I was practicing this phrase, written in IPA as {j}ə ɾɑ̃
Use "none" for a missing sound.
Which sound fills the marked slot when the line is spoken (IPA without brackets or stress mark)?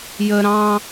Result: j